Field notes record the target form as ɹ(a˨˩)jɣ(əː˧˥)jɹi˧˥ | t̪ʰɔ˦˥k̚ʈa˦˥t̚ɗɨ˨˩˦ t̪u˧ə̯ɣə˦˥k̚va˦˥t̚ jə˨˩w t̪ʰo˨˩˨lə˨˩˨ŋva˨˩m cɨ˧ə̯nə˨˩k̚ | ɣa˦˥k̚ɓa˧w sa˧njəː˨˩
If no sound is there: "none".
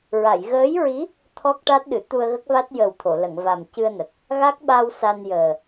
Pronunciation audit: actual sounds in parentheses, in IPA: a˨˩˨, əː˧˥

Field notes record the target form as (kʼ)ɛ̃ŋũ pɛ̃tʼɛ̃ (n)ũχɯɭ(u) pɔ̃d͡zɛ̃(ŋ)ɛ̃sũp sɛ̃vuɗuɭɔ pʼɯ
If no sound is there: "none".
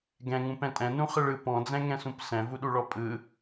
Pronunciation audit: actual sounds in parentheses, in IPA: ɡ, n, ɯ, ŋ

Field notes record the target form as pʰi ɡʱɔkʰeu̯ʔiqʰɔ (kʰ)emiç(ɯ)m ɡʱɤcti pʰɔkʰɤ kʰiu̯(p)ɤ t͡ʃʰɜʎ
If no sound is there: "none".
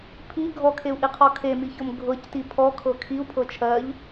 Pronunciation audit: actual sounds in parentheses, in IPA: kʰ, ɤ, pʰ

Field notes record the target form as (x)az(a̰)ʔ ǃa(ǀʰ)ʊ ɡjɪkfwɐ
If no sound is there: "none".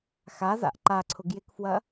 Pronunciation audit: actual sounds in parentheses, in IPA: x, a̰, ǀʰ

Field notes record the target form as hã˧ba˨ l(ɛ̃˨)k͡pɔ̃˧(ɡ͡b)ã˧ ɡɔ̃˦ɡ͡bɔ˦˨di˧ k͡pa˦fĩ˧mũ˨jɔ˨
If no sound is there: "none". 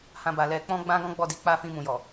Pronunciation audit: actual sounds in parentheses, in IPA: ɛ˨, ɡ͡b

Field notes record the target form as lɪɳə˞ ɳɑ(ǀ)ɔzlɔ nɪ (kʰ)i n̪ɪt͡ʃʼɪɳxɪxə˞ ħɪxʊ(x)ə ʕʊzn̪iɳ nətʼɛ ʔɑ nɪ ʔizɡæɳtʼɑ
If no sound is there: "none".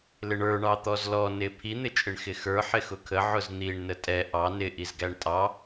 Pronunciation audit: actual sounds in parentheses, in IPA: t̪, pʰ, kʰ

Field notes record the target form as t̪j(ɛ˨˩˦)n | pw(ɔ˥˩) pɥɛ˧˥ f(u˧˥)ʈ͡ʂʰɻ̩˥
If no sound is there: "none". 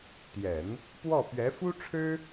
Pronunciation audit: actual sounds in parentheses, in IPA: ɛ˨˩˦, ɔ˥˩, u˥

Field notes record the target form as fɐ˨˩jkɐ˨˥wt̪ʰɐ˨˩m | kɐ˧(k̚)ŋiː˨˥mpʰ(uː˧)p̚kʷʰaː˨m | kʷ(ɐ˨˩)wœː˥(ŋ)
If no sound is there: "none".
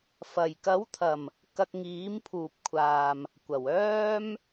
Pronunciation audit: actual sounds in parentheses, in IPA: k̚, uː˨, ɐ˨˩, m

